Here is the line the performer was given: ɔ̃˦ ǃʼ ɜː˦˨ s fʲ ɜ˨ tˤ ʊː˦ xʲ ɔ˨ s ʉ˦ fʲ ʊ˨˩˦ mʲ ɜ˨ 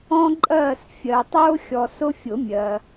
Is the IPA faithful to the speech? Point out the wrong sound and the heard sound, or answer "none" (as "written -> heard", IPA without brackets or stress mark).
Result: ʉ˦ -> ʊ˦